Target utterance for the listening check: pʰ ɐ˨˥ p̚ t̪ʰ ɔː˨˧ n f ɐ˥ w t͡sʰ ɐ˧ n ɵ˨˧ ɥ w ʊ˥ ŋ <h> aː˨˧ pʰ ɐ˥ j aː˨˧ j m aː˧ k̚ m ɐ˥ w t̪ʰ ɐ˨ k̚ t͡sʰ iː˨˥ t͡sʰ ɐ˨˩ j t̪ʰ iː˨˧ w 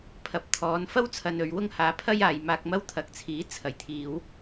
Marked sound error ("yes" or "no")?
no